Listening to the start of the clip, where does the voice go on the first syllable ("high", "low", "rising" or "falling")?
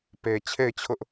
low